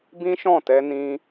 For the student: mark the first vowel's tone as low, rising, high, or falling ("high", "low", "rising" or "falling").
high